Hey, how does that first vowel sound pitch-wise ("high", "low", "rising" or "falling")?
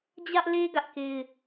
high